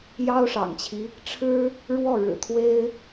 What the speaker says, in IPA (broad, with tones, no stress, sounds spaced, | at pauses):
j ɑ˥ ʊ̯ ʂ ɑ̰˨˩ ŋ t͡ɕʰ i˦ | ʈ͡ʂʰ ɻ̩˥ | ɻ w ɔ˥˩ ɻ ɻ̩˨˩ t̪ʰ w e˥ ɪ̯